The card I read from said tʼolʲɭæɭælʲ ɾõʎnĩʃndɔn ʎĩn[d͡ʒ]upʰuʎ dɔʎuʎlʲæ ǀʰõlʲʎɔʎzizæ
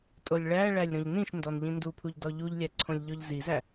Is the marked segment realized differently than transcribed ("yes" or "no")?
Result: yes